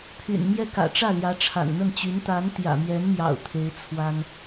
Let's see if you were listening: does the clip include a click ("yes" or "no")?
no